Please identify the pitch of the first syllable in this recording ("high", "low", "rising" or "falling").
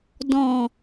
low